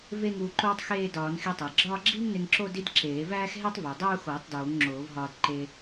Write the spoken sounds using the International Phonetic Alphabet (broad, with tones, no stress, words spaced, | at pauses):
ve˥ŋuː˧ǃoː˥tˤ xeː˥˧dɒː˨˩˦nxi˧tˤæ˩ ɡ͡ǁɒː˥˧ɡ͡ǁiː˥ŋne˧ŋǁo˥˧ di˥dǁeː˨˩˦ væː˥xɦe˥tˤvo˩ dˤuː˥˧xoː˨˩˦tˤ doː˨˩˦ŋŋ͡ǁoː˨˩˦v ɦɒː˧dǃe˧